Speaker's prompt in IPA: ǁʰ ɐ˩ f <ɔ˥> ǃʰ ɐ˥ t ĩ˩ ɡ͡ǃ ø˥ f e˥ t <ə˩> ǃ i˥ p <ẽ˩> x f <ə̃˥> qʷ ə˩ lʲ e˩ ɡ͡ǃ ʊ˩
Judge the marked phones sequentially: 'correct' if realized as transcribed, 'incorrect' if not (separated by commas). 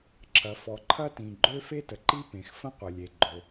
incorrect, correct, correct, correct